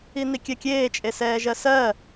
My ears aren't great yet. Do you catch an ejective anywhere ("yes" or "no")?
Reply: yes